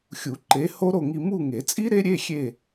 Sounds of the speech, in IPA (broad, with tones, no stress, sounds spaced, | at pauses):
xʲ u˨˩˦ ǃ e˨˥ h o˦˥ ɾ o˦˨ ŋ i˦˨ m u˦˨ ŋ e˨˩˦ t͡sʼ i˦˥ ɾ e˦˥ ɾʲ e˧˥˧ xʲ e˦˨